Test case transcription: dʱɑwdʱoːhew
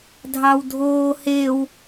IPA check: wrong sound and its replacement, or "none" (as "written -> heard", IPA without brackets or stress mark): none